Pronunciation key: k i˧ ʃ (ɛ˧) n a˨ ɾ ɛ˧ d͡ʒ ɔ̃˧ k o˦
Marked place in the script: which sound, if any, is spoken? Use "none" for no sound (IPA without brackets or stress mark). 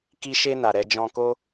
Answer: e˧